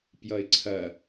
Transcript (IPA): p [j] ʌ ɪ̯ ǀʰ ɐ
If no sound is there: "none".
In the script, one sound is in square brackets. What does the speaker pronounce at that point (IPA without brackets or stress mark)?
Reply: j